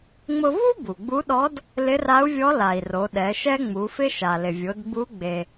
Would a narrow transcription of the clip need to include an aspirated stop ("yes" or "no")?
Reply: no